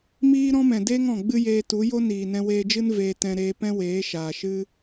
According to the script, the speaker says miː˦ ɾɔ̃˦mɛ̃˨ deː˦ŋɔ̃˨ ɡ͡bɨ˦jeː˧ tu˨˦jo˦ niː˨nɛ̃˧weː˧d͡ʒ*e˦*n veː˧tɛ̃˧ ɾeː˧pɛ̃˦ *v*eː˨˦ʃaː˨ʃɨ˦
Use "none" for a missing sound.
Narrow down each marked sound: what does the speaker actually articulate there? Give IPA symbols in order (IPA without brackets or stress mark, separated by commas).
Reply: ɨ˦, w